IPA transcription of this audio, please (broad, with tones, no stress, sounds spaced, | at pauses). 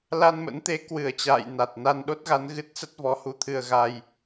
l a˧ n m ə̰˧˥ n t̪ e˨˦ k w ɨ˧˩ ə̯ t͡ɕ a̰ː˧˨ j n a˨˩ t̚ n a˧ n ɗ o˦˥ t̚ ɣ a˨˦ n ɣ ɨ˦˥ t̚ s ə˦˥ t̚ v ɔ˨˦ h u˧ t̪ʰ ɨ˧ ə̯ ɣ a˧ j